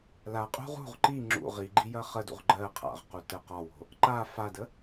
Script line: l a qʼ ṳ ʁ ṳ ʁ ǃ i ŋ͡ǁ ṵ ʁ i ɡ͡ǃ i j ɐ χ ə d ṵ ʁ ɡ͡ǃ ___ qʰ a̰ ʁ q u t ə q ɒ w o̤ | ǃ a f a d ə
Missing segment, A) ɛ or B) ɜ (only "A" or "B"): B